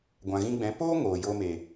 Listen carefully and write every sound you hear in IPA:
ɡʷã˨ɣĩ˧ɡ͡bɛ̃˨˦ poː˦ ŋoː˨ joː˧me˨

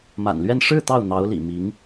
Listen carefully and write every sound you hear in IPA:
ma̰˨˩nlɥɛ˥˧n ʂɻ̩˥˧ t̪ɑ˥˩ʊ̯n̪ɑ˧˥ʊ̯lḭ˨˩ mi˧˥ŋ

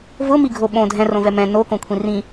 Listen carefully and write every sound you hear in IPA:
vʊ miɡʱoɓõ dʱɛ̃ rõvɛmɛ̃ no kõkʷʰĩrĩ

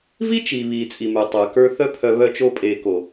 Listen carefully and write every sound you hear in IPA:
vi˦t͡ʃiː˨ βiː˨t͡sʼi˨mə˞˨ tˤə˞˨kə˞˧ θœ˦pʰœ˧ βœ˧t͡ʃo˧ pʼeː˨ko˨

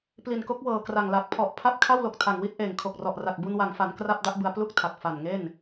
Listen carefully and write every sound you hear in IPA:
pli˨˩nko˦˥k̚wɤː˨˩kra˨˩ŋ la˨˩k̚pʰɔ˨˩ʔ pʰa˥˩p̚ kʰa˥˩wlo˨˩k̚tʰa˨˩ŋwi˥˩t̚ ʔeː˨˩ŋkʰo˨˩k̚rɔ˨˩ʔra˨˩k̚ bu˧nwa˩˦ŋfa˩˦n kra˥˩p̚ da˥˩ʔbɯ˧a̯ plu˥˩k̚tʰa˨˩k̚ fa˨˩nŋe˥˩n

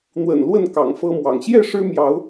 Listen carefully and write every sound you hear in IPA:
n̪wə̰˨˩n lwə˥˨n kɑ̰˨˩ŋfɤ˦mwɑ̰˨˩ŋ ɕjɛ˥˨ ʂɻ̩˦mjɑ˨˦ʊ̯

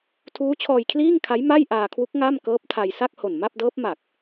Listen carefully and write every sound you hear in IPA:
tʰuː˦˥t͡ɕʰɔː˧jkʰliː˥˩ŋkʰa˦˥j ma˥˩jʔaː˧kʰwu˦˥k̚ ŋa˥˩m kɤː˦˥p̚tʰa˧j sa˥˩k̚ho˨˩nma˥˩p̚dɤː˦˥p̚ ma˨˩k̚

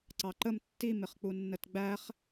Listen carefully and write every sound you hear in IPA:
ǀɑǃəm tːimɪχk͡pu nːətɡ͡bæχ

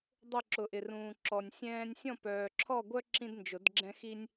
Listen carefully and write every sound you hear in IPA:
dˤʊ˥˧ ǁʊ˨ʔɪ˨rũː˨ ǁɔ˨nʲsʲɛ̃ː˥nʲ sʲɔ̃˥˧pœː˨ǁʰɔ˥˧ɡʷœ˥ ǁĩ˥dnd͡ʒʊ˨˩˦dɡ͡ǁɛ̃˥ xi˥nʲ

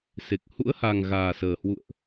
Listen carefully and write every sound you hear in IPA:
se˨˩k̚ hṵ˧˥ə̯ha˨˩ŋ ɣaː˨˩səː˨˩ hwṵ˧˨ə̯ʔ

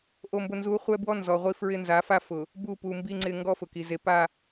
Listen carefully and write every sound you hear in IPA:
ʔo˨mbʊ˨ nzu˨˦χʷɛ˦bwɔ˦ nzɔ˨ʁʷi˦fɹɪ˦ nza˨˦fa˦fʊ˨ | bu˦˨pu˨ mbi˨ŋ͡ǀɪ˨ ŋɡɔ˦fʊ˨ki˨ ze˨pa˦˨

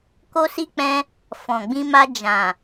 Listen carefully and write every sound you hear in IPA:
ko˦si˦ k͡pɛ̃˧ | fɔ̃˨ɡ͡bĩ˧ma˧ d͡ʒã˨

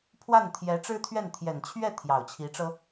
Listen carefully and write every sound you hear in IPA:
pʰwa˥˩nt̪ʰjɛ˧˥ʈ͡ʂɻ̩˥t̪ʰɥɛ˥˩n t̪ʰjɛ˨˩nt͡ɕʰɥɛ˥˩ t̪ʰjɑ˨˩ʊ̯t͡ɕʰi˧˥ʈ͡ʂɤ˥

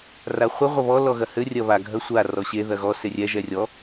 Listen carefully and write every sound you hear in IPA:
raχʷɘ ʁʷɐβɔ lɔɣɐhɘ rʲɐβa ɡʱɐsʷa rɔɕe ðɐɣɔ serʲɛ ʒɛrʲɔ

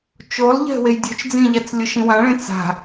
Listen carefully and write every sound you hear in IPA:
t͡ʃolˠʎɛ̤ wejdʲɵt͡ʃd͡zĩʎat͡s lʲʊʃĩwãɭẽ t͡sa̤

